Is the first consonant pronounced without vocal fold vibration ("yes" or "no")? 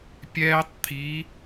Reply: yes